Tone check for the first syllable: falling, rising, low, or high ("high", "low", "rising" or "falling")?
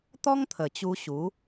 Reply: high